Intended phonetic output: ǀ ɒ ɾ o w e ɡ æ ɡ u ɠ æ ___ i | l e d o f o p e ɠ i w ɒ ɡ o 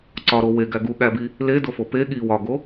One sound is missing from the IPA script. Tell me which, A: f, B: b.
B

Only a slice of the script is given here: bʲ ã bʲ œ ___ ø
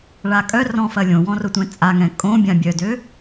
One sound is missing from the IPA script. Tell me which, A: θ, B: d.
B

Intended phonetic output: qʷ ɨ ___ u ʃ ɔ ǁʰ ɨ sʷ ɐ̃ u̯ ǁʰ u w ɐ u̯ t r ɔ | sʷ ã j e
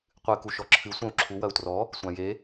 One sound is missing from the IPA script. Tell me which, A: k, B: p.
A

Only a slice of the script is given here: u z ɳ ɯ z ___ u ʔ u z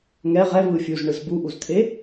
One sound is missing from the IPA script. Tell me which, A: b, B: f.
A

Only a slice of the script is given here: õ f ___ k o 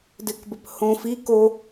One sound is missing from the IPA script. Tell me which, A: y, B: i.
B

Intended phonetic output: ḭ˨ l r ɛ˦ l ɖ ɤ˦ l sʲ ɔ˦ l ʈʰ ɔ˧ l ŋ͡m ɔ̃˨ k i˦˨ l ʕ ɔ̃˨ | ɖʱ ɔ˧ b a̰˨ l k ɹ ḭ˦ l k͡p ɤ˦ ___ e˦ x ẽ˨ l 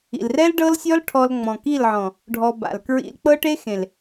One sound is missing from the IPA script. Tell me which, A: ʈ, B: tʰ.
A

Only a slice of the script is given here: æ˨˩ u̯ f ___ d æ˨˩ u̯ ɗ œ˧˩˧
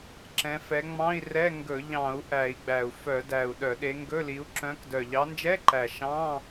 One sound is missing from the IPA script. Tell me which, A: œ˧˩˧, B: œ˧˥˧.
A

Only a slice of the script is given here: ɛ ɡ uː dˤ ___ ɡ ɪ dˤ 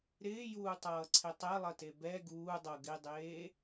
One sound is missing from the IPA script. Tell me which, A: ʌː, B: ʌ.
B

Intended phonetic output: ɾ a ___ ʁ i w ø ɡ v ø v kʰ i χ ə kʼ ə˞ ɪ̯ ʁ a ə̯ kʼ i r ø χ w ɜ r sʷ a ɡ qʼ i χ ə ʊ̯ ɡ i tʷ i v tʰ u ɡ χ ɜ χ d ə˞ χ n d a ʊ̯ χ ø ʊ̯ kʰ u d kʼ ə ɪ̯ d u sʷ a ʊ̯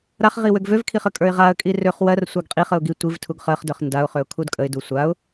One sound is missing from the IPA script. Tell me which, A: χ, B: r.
A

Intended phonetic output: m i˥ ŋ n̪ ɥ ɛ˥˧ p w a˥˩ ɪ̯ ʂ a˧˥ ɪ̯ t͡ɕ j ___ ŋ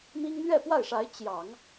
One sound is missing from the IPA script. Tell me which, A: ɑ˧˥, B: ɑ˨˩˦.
B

